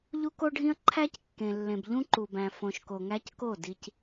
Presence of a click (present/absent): present